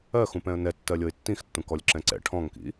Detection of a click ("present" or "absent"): present